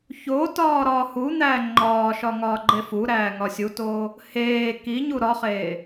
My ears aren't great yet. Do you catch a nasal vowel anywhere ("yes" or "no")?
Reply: no